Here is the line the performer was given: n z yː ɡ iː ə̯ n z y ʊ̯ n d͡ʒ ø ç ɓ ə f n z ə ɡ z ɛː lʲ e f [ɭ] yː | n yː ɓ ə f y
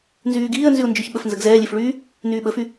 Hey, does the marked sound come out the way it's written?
yes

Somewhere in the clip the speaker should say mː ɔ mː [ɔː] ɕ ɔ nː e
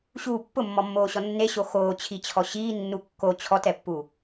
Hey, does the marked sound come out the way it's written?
no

